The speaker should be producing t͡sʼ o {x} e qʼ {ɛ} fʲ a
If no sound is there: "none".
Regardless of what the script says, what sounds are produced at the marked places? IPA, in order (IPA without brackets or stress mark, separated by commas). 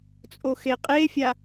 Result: x, e